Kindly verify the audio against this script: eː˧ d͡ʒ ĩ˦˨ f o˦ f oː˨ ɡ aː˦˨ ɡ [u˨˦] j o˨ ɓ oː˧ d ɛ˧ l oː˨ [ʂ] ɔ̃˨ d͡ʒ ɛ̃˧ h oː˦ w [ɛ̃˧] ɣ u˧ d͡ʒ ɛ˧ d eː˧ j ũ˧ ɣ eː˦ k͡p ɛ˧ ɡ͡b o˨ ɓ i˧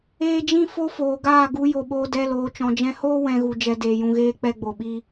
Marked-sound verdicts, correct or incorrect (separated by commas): correct, incorrect, incorrect